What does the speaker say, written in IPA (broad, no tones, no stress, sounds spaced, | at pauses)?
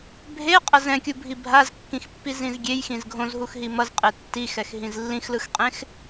bʱ e qʼ ʌ z ɛ̃ kʲ u bʱ i bʱ a z kː ĩ x pː i z ĩ z ɡʲ e j x ĩ z ɡʱ õ z ɦ u x ɦ i m ʌ z qʼ e tː i x ɛ x ɦ ĩ z lː ĩ x l ɯ x qʼ ẽ x